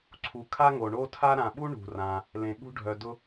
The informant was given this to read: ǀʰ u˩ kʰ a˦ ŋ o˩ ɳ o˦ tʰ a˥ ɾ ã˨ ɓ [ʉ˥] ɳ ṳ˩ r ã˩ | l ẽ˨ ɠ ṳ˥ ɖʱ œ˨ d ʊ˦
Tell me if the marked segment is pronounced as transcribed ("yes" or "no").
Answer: no